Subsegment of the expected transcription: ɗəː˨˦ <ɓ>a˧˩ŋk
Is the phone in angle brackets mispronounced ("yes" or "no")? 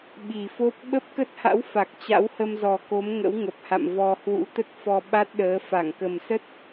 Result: yes